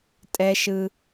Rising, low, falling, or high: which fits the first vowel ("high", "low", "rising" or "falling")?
high